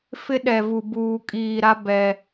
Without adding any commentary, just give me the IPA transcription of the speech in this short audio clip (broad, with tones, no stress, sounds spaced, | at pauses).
f ɪ˦ ɗ ɛ˨ v u˨ b uː˨ kʼ iː˨ ɾ a˦ b ɛ˨